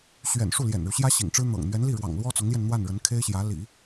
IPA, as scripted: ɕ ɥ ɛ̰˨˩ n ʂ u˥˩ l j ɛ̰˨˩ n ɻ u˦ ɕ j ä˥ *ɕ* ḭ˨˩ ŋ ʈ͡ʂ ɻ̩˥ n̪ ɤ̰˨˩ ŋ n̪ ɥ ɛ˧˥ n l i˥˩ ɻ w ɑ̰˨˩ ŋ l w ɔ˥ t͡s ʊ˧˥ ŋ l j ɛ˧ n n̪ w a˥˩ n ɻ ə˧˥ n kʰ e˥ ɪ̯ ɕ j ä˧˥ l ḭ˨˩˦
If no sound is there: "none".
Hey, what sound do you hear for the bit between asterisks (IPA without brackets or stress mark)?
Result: ɕ